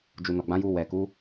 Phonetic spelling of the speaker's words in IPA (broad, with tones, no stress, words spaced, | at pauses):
d͡ʒu˨nɔ˨ɡ͡bã˨˦ju˧ wɛ˨ku˨˦